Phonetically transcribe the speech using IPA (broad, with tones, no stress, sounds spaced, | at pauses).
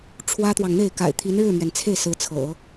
ʈ͡ʂʰ w ä˥ t̪ w ɑ˨ ŋ n̪ e˥˩ ɪ̯ k a̰˨˩ ɪ̯ t̪ʰ i˧˥ n ɻ ɻ̩˥˩ m ɥ ɛ˩ n t͡sʰ e˥˩ ɪ̯ s ɹ̩˧˥ t͡sʰ ɤ̰˨˩˦